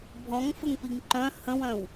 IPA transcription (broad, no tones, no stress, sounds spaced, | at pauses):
bʱ ɔ̃ ŋ f ə ŋ p i ŋ ǃ œ̃ h ə̃ w œ̃ w